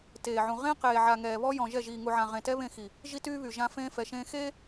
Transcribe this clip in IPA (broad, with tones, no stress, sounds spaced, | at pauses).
t eː˨ ʕ ũ˨ ʁ ẽ˦ q eː˨ ʕ a˨ ŋ ɛː˨ β ɔ˦ j ɔ̃˨ ʒ ɛ˦˨ ʒ iː˨ ŋ u˨ ʕ ã˨ ʁ ẽ˨ t ɛ˦ β ẽ˦˨ x i˨ | ʒ i˦ t yː˦ β y˨ ʒ ã˦ f ẽː˦ f ɛ˨ ʃ ẽː˦ x eː˦